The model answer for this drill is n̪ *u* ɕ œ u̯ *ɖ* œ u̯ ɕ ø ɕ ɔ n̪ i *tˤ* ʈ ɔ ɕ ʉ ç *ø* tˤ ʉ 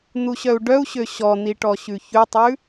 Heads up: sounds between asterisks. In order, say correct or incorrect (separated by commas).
correct, correct, incorrect, incorrect